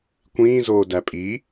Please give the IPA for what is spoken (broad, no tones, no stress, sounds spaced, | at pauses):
kʷ ĩː z oː d æ pʼ i